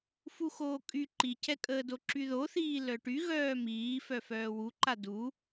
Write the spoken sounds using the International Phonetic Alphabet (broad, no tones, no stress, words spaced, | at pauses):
fuxoːkʼy ǃicʰɛkʼəːdo ǁyðoθiː lœʈy ɣœːmiː fœfœːwuǃa du